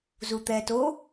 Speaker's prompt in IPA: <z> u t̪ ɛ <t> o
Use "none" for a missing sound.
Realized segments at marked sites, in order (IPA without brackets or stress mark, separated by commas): z, t